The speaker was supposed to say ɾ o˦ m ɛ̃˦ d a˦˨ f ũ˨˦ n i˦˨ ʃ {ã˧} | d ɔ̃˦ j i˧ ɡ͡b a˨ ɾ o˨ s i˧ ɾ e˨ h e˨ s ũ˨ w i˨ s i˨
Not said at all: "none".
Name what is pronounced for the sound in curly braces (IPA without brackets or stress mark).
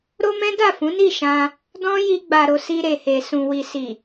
ã˧